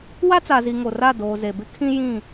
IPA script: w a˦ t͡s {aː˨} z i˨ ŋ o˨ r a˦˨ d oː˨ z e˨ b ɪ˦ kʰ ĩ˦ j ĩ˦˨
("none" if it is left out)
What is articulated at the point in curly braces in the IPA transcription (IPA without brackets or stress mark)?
a˨